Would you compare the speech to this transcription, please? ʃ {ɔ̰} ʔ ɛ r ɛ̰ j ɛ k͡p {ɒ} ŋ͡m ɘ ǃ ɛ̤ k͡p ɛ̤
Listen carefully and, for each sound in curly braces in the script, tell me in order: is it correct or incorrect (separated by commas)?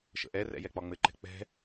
incorrect, correct